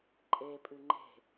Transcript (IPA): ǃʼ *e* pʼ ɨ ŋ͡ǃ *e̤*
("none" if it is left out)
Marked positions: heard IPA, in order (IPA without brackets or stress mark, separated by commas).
e, e̤